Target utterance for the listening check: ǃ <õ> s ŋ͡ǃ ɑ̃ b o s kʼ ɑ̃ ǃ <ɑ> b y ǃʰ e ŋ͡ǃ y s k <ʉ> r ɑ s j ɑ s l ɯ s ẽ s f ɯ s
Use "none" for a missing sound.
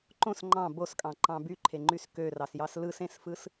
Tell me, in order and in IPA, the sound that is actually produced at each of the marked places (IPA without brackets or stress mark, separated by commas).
õ, ɑ̃, ø